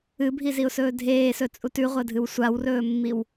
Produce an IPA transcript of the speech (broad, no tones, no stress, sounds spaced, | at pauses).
ɨ bʱ i z i ʊ̯ s ɵː dʱ eː s ɵ t͡sʼ u t ʉ ʁʷ ɐ dʱ ɨ w sʷ a w r ɵː mː i w